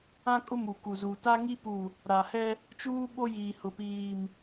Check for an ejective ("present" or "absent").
present